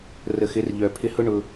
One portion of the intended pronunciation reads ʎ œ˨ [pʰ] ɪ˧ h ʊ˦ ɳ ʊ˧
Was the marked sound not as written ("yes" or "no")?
no